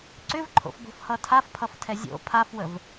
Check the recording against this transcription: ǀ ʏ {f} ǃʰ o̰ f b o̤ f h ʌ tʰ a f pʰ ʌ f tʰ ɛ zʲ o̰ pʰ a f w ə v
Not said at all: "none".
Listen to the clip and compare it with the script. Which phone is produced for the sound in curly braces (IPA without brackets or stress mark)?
v